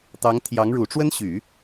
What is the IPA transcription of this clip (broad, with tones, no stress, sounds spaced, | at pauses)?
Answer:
t̪ ɑ˧˥ ŋ t̪ʰ j ɑ˧˥ ŋ ɻ u˨˩ ʈ͡ʂ w ə˥ n ɕ y˨˩˦